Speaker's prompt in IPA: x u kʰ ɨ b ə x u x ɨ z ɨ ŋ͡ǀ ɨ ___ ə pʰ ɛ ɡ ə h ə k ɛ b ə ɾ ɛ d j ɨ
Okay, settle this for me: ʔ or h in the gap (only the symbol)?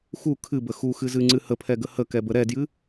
h